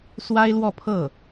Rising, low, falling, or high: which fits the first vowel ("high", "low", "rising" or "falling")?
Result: high